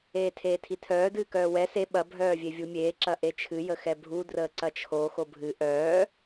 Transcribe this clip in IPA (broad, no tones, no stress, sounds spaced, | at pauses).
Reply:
eː tʰ eː tʰ i tʰ œː d ɨː k œː w ɛ s e ɓ ɐ bʱ œː vʲ e vʲ u mʲ eː ǁ ɐ ʔ e t͡ʃʰ ɨ j ə x ɛ bʱ u d r əː ǀ ɐ t͡ʃʰ o x o bʱ ɨ ʔ œː